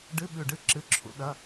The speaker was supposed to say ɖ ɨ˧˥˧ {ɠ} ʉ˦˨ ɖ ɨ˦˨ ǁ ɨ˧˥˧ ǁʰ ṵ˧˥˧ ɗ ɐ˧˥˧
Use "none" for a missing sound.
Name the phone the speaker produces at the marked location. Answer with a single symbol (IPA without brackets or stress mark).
ɓ